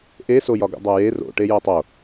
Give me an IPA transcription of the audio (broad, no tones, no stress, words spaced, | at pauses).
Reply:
ʔesojɒɡṵ dˤoje ro̰ ʈejotˤo